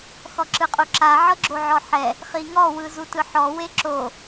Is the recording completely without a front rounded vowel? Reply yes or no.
yes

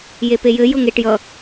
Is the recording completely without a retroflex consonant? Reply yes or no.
no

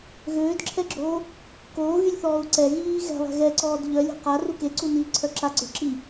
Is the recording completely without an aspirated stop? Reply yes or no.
no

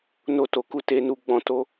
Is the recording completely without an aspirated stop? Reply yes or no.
yes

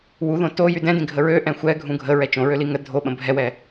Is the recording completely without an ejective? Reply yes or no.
yes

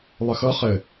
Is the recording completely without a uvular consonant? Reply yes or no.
no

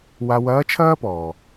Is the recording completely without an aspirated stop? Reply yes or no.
no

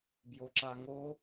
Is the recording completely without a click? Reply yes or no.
no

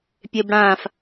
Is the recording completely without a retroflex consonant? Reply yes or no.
no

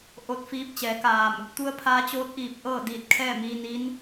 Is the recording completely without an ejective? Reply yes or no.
yes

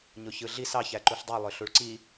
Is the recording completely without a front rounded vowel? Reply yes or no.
no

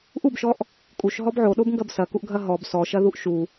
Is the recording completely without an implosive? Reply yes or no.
no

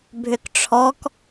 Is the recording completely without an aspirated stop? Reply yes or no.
no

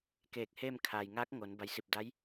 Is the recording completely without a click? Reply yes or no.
yes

